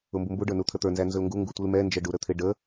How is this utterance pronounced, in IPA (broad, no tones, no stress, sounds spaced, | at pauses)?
ʊ m b u m b u ɖ ə˞ n u t̪ʰ ə t̪ ə˞ n z æ n z ʊ l ŋ ɡ u ŋ ɡ u tʷ i l m ɛ n d͡ʒ ə ɖ u ɾ ə t̪ʰ ɪ ɖ ə